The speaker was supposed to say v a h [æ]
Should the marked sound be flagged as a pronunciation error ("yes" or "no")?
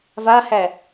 no